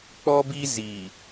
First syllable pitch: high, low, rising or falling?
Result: high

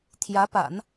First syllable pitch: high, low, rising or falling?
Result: rising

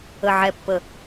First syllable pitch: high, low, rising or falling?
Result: low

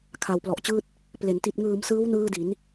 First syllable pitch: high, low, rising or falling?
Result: low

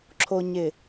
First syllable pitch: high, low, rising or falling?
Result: low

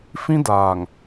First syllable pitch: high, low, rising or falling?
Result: high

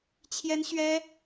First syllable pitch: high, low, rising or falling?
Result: high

